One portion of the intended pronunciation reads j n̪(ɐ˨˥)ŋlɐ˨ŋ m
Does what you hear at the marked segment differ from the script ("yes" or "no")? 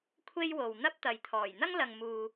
yes